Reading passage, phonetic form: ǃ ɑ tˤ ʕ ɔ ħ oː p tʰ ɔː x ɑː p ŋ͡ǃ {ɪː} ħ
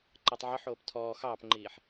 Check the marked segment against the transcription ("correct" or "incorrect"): incorrect